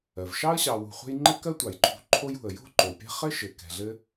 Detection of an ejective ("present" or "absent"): absent